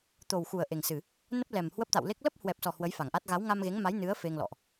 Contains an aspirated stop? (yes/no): no